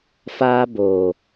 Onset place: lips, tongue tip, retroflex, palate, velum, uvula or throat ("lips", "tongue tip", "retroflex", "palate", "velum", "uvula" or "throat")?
lips